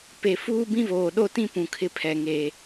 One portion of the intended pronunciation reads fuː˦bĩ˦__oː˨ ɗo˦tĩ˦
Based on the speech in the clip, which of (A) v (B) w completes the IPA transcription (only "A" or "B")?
A